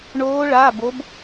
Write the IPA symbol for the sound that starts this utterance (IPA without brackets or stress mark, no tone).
ɳ